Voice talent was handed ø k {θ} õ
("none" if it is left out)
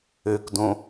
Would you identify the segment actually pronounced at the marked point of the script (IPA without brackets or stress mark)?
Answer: d